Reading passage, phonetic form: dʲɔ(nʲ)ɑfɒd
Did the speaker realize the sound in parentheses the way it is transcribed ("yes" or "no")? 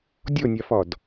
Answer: yes